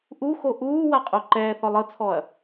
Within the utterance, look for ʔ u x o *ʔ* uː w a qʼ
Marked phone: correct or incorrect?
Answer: correct